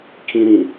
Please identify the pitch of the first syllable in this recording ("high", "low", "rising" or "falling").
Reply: high